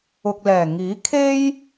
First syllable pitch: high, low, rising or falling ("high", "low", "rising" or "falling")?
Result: low